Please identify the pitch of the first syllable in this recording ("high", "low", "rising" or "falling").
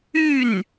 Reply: falling